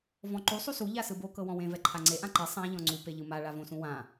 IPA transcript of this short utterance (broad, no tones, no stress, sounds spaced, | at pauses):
v ɔ̃ ǃ u sˤ u s u ʎ a s ɯ b o k ɤ w ɔ̃ w ẽ v ɛ ǃʰ a ŋ͡ǀ e ʔ ã ǃ e sˤ ã ʎ ɔ̃ ŋ͡ǀ u p e ʎ ɯ m a ɭ a v õ s ũ w ã